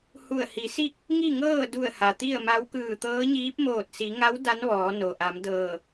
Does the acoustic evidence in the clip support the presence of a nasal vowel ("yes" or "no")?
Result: no